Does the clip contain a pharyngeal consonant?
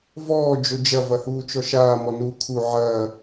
yes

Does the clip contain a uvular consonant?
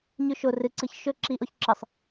no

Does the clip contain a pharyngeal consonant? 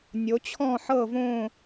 yes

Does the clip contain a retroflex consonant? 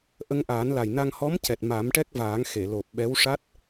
yes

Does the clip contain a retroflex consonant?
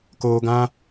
no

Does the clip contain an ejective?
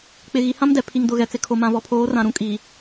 yes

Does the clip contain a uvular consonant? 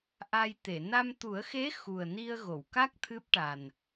no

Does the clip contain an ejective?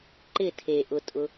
yes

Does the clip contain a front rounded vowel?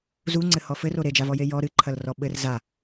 no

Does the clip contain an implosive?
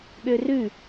yes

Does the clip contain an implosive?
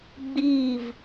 no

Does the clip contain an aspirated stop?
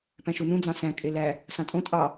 no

